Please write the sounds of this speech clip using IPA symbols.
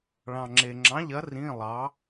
ɭ ɑ̃˨ ŋ͡ǁ e˨ ŋ͡ǁ ɑ̃˨˥ ʎ ɐ˨˥ r ĩ˧˥˧ lˠ ɑ˨˥

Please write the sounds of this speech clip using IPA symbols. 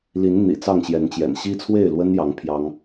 l i˨˦ n n̪ ḭ˨˩ t͡s ɑ˥˨ ŋ ɕ j ɛ˨˦ n t͡ɕ j ɛ̰˨˩ n ɕ i˦ t͡sʰ w e˥˨ ɪ̯ l w ə˦ n j ɑ˨˦ ŋ pʰ j ɑ˦ ŋ

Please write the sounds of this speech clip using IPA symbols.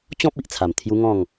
t͡ɕ ɔ̃˦ p̚ i˨ ʔ t͡sʰ a˨˩ m t̪ʰ j u˦ ŋ ɔ̃˥˧ ŋ

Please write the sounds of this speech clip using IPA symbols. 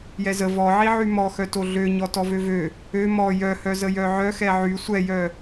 j ɛ z ə v ɔ ʕ i ʕ y m ɔ x œ t o ɮ ø ɲ ɔ t ɔ v ø v ø | ø m ɔ j œ h œ z ə j œ ʕ œ x ɛ ʕ y sʷ ɛ j œ

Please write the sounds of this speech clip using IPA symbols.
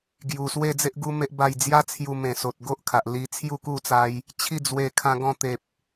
ɡ j u˨˩ s w e˥˧ d͡z e˦ ʔ ɡ u˦ m e˦ ʔ b a˥˧ j d͡z j a˦ t͡sʰ j u˧ m ẽ˨˩ s o˨ t̚ ɡ o˦ ʔ kʰ a˨ ʔ l i˧ t͡sʰ j u˥˧ k u˥˧ t͡s a˧ j | t͡ɕʰ i˥˧ d͡z w e˧ kʰ ã˧ ɡ ɔ̃˧ t̪ e˨ p̚

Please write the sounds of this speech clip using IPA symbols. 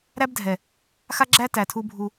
ɾ æ˦ b dʱ ɛ˨ | x a˦ ɡ͡ǁ æ˦ t æ˨ tʰ u˦ bʱ u˦

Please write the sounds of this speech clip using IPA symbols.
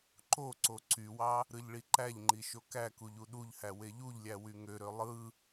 ǃ o ǀ o ǀ y w ɑ | ɾ ɯ ʎ ɭ i ǃ æ ʎ ŋ͡ǃ i ʃ o k æ k u ʎ u ɗ u ʎ h æ w e ʎ u ʎ lʲ æ w y ŋ ø ɾ ø lˠ ɯ

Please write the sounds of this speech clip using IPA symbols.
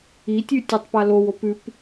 i tʲ ʉ tʲ o tˤ p a l o w o p ʉ p

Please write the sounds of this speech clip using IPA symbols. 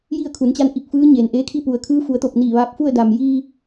j i˥˨ ə̯ kʰ u˩˧ n t͡ɕ a˧˥ n ʔ i˧˩ k̚ f ɯː˧˥ ɲ eː˩ n ʔ eː˧˥ kʰ i˥˨ p u˩ ə̯ kʰ ɯː˧˥ f u˩˧ ə̯ t̪ o˧˩ p̚ n iː˧˩ ʋ aː˧ p̚ f u˥˨ ə̯ d a˩ m j iː˧

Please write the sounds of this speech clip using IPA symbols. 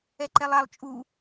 ɛ ǃ ɛ lˠ a lˠ t͡ʃʼ u

